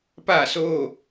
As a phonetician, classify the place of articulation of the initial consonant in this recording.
labial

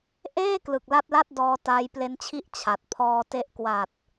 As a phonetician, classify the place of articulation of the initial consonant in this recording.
glottal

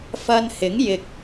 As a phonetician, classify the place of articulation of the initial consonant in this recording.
labial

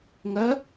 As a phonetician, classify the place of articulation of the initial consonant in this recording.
velar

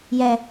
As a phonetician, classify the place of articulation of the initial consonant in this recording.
palatal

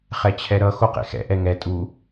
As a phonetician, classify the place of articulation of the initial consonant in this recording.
uvular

